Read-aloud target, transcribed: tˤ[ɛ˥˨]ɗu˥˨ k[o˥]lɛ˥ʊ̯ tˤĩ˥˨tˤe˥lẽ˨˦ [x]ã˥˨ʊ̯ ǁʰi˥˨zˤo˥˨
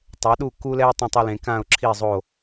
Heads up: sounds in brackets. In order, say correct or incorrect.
incorrect, incorrect, incorrect

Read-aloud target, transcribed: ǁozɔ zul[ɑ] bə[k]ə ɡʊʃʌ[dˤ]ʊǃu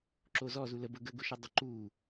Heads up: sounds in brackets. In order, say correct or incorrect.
incorrect, incorrect, correct

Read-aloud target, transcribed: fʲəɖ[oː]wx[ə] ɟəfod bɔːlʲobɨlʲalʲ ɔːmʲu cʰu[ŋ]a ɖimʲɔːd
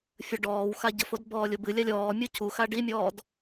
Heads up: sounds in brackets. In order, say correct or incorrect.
incorrect, incorrect, incorrect

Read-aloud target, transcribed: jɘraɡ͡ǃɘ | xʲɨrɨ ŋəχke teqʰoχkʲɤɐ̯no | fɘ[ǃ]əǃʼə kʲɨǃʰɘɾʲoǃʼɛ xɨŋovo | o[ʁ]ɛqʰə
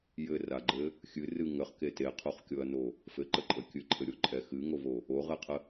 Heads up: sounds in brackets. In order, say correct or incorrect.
correct, correct

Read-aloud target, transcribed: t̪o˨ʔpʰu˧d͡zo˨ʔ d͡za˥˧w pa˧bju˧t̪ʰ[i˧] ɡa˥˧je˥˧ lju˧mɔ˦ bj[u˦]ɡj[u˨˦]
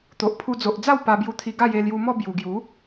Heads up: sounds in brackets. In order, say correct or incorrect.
correct, incorrect, correct

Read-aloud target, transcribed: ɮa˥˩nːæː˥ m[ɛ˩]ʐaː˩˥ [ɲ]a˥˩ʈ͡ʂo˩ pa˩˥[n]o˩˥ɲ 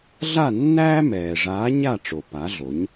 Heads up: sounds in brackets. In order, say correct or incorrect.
incorrect, correct, incorrect

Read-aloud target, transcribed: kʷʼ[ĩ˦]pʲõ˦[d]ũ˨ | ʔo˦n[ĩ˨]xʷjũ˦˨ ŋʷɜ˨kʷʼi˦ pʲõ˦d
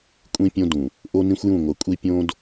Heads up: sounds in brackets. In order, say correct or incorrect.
correct, correct, incorrect

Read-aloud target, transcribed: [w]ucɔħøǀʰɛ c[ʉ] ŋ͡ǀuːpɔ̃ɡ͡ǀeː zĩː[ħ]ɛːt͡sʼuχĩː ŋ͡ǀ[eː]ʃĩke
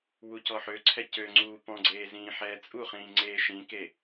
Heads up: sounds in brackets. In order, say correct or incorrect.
correct, incorrect, correct, correct

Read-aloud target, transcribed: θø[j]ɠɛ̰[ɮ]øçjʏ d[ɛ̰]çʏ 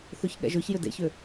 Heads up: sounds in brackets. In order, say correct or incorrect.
incorrect, incorrect, incorrect

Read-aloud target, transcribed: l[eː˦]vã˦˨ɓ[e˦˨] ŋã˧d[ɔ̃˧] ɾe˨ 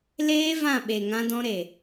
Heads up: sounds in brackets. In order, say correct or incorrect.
correct, incorrect, correct

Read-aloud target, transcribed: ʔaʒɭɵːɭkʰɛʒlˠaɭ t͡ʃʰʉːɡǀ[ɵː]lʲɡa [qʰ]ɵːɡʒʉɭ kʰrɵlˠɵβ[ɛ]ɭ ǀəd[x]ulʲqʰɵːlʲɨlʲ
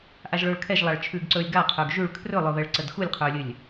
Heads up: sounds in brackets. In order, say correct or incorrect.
correct, correct, correct, correct

